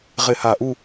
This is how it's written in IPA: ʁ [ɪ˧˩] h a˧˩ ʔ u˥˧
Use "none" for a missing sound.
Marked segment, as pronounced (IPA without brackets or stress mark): ɪ˧˩